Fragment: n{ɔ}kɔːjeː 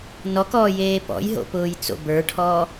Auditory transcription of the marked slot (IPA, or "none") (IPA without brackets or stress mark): ɔ